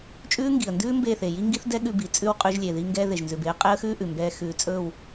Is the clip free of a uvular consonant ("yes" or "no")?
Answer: no